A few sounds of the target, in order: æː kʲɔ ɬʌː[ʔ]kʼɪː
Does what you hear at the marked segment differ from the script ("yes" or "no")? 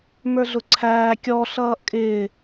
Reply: no